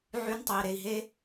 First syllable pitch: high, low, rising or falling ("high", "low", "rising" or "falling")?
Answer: high